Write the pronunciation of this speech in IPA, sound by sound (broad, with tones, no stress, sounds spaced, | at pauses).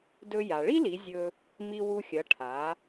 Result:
d ɵ˧ j a˩ ɭ i˥ l i˩˧ zʲ ɵ˧ | m i˧ w u˧ xʲ ɐ˩˧ ʈʰ a˩˧